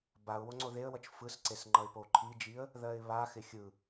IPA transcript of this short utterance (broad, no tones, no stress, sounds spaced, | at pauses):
b a ʊ̯ w o ŋ͡ǀ o ð e ə̯ w ʌ t͡ʃ f ɯ s ǀ e s ŋ͡ǃ ʌ ɪ̯ p o ǃʰ i d͡ʒ i ə̯ | ð ɜ ɪ̯ β a x ɪ xʲ ɯ